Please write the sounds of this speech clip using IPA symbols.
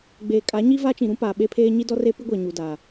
ɡ͡b eː˨ kʼ a˨˦ ɲ i˦ v a˦ t͡ʃ ĩ˨ ɾ ũ˦ p aː˨ ɓ e˦ pʰ eː˦ ɲ i˦ d ɔ˦ r e˦ p i˦ ɡʷ ɛ˨ ɲ u˨ d a˨

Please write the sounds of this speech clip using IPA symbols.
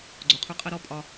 ɡ͡ǀ o˨ qʰ u˧ qʼ ɜ˦ ɾ ɔ˦ pʼ ɒ˧

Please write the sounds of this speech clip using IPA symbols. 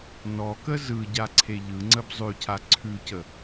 n ɔ k ə z ɯ ɟ a ǀʰ e ʎ ɯ ŋ͡ǀ ə b zˤ ʉ cʰ a ǀʰ ʉ c ə

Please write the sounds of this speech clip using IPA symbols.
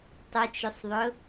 tˤ ʊ t͡ʃ ʊ sˤ ðˤ ʊ

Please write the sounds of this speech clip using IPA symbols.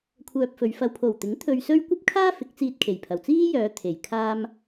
kʷʰ œː˧ p̚ f ɵ˨˧ ɥ f ɐ˨ w pʰ o˨˩ w t̪ ɪ˨˥ ŋ t̪ʰ ɵ˧ ɥ s ɵ˥ ɥ kʷ ɐ˥ p̚ kʰ aː˥ f ɪ˨˥ k̚ t͡s iː˧ t̚ kʰ e˨˩ j pʰ ɐ˨˩ w t͡s iː˥ j œː˨˧ t̪ʰ e˨˩ j kʰ aː˧ m

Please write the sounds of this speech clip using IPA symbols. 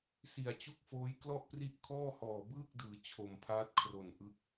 s i˨˩ a̯ t͡ɕ u˥˩ k̚ f oː˦˥ j k l ɔ˥˩ ʔ p r i˥˩ ʔ kʰ ɔː˥˩ h ɔː˨˩ b ɯː˥˩ k̚ d ɯː˩˦ t͡ɕʰ o˨˩ m pʰ aː˦˥ t̚ kʰ r o˨˩ n ʔ ɯ˦˥ k̚

